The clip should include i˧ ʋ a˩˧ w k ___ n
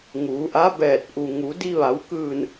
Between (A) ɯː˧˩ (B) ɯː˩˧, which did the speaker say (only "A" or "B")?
A